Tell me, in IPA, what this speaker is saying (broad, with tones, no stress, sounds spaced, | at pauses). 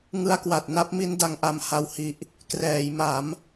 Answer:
ŋ ɯ˧ a̯ k w a˨˩ t̚ n a˥˩ p̚ m i˦˥ n d a˧ ŋ ʔ a˧ m h a˧ w h i˨˩ ʔ | k r ɛː˩˦ j m a˩˦ m